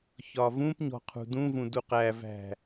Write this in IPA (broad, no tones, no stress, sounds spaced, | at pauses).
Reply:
ç ɒ v ũ p ɲ ɔ̤ qʰ ṳ d ũ v ũ d u q æ v æ̤